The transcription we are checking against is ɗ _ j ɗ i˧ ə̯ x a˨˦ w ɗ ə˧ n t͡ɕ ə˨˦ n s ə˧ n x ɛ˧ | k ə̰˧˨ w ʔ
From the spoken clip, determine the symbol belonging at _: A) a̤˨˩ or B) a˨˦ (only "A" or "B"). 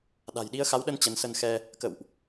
A